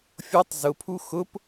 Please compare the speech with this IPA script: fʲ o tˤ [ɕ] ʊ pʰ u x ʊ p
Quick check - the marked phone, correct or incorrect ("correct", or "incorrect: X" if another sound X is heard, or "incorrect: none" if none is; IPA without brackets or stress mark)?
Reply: incorrect: z